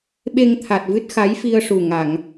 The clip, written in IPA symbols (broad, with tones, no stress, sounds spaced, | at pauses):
ɓ e˧ ŋ t̪ʰ a˨˩ t̚ v ɨ˦˥ t̚ x a˧˥ j f i˧ ə̯ ʂ u˨˩ ŋ a˨˩˨ ŋ